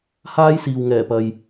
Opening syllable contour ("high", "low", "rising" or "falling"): high